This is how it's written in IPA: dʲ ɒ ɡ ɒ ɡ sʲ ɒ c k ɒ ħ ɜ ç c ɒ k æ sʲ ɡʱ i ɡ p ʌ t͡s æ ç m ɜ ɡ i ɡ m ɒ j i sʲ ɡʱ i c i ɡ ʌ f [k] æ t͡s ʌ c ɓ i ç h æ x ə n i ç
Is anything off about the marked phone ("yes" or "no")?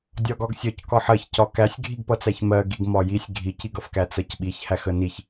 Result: no